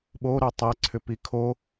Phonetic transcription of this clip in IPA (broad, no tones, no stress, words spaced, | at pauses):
ɓoɾo tˤɛǀʰʏpi kʰo